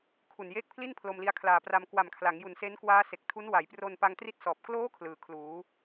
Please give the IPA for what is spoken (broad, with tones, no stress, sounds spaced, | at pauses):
kʰ u˨˩ n j eː˥˩ k̚ pʰ l i˥˩ n pʰ l o˧ m l i˧ a̯ kʰ l aː˨˩ p r a˧ m k w a˨˩ m kʰ l a˩˦ ŋ j u˨˩ n s e˦˥ n k w aː˦˥ s e˨˩ k̚ tʰ u˦˥ n w a˩˦ j p r o˧ n p a˧ ŋ t r i˥˩ t̚ s ɔː˨˩ p̚ k l oː˦˥ kʰ l ɯː˩˦ kʰ l uː˩˦